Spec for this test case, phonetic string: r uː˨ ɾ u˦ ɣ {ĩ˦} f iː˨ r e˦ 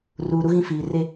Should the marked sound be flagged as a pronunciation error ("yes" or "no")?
no